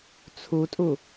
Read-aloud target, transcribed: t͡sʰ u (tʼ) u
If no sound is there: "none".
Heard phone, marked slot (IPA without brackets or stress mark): tʼ